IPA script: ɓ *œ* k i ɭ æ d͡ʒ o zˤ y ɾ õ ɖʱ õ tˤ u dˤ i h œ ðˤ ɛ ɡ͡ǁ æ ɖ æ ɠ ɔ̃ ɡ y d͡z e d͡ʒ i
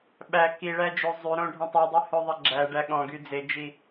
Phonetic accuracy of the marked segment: incorrect: æ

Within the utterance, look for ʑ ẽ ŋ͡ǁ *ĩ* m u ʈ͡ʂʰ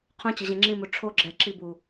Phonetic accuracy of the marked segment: correct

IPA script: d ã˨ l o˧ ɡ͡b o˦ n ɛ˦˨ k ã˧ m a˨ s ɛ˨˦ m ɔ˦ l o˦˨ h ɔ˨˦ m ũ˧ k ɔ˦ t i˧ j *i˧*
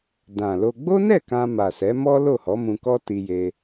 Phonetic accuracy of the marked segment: incorrect: e˧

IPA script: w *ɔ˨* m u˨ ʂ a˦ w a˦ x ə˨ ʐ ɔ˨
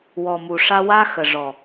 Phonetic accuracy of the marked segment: correct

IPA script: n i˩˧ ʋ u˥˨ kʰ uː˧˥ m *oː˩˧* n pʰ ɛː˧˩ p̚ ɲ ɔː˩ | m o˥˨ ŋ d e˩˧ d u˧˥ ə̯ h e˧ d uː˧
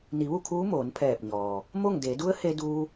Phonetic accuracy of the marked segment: correct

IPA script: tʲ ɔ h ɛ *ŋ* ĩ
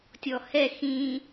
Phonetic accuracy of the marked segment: incorrect: x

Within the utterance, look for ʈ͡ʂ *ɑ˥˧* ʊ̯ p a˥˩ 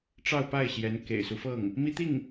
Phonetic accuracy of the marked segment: correct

